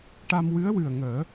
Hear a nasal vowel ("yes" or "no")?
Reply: no